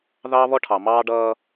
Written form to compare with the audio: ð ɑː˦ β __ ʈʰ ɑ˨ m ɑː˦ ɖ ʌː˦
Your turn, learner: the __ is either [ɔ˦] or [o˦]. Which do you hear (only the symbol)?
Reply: ɔ˦